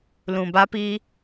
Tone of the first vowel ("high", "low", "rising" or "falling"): low